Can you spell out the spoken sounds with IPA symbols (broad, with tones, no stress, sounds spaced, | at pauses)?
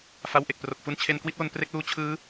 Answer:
f a˧ w ʔ e˨˩ k̚ p r o˨˩ k̚ f u˧ n t͡ɕʰ e˧ n k w i˥˩ t̚ w o˧ n p r e˦˥ k̚ l uː˦˥ t͡ɕʰ ɯː˦˥